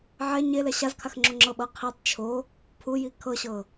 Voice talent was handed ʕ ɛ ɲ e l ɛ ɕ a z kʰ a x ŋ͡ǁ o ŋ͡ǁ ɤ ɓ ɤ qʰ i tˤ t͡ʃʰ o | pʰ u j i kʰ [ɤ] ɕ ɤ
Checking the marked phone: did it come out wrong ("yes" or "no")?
no